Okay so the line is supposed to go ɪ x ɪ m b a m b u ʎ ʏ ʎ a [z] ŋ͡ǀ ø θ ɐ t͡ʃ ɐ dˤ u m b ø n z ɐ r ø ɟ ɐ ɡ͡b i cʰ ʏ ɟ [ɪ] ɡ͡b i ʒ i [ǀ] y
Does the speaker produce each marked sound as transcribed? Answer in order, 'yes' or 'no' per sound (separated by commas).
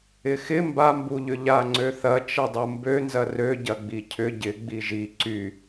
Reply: no, yes, yes